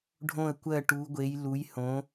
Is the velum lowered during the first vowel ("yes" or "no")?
yes